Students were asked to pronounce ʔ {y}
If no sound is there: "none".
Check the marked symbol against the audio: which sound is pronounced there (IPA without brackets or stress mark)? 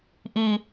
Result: i